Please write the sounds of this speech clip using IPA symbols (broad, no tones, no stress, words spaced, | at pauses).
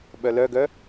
ɓœlœɡœ